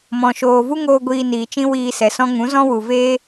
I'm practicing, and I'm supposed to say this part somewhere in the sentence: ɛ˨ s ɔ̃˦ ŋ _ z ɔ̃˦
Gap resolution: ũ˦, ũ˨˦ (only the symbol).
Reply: ũ˨˦